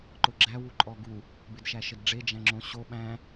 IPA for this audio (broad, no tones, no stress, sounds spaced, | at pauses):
ǃ ʊ ɡ͡ǁ æ w u ǃʼ ɔ ɡ u | b ɪ d ʃ æ ʃ ə d ɖ͡ʐ e d͡ʒ æ̃ ŋ͡ǁ õ ɕ o ɓ æ̃